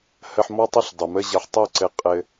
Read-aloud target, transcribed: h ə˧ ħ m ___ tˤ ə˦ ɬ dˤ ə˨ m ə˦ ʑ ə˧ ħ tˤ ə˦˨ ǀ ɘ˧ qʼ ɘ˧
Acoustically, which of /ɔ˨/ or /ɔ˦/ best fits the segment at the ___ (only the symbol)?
ɔ˦